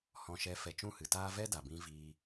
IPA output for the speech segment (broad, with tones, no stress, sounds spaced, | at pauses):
h ɔ̃˧ ʃ ɛ˧ f ɛ˨ t͡ʃ ũ˦˨ h ɨ˨ t aː˦ v ɛ˦ d a˨ b ĩ˧ v iː˧